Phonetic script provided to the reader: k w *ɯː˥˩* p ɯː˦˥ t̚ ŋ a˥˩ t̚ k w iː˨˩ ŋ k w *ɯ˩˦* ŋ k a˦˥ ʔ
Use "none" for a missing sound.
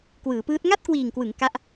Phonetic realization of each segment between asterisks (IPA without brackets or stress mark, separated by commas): ɯː˩˦, ɯ˩˦